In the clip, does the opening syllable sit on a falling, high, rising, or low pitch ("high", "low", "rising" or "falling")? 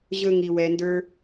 low